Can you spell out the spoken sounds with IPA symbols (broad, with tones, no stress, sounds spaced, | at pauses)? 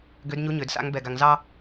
ɡ ø˧˥ d ɲ u˧˥ ɲ ø˨˩˦ d s a̰˧˥ ŋ b ɛ˧ ɡ a˧ ŋ z ɑ˥